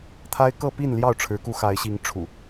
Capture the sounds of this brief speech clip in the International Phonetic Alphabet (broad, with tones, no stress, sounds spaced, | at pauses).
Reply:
t̪ʰ a˦ ɪ̯ k ɤ˥˨ p i˥˨ n l j ɑ˥˨ ʊ̯ ʈ͡ʂʰ ɻ̩˨˦ k u˧ x a˨˦ ɪ̯ ɕ i˨˦ ŋ ʈ͡ʂʰ ṵ˨˩